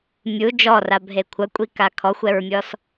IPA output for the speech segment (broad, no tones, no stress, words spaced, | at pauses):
mʲu d͡ʒɔrabʱe kʷʰɐkʷʼika kʰɔxʷɛɹmʲɔs